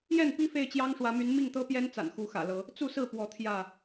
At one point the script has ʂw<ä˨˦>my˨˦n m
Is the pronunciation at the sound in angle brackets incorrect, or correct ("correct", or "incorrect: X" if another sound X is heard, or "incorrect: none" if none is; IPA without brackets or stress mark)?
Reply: correct